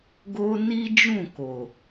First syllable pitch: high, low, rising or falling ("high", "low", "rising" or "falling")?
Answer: high